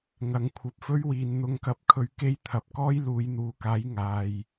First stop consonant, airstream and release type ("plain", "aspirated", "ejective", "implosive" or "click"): aspirated